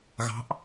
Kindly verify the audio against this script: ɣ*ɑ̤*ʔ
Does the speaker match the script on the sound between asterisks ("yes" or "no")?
yes